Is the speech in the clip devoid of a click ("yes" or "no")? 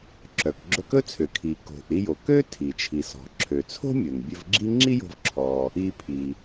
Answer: no